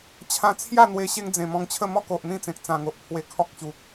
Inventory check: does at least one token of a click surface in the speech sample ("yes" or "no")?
no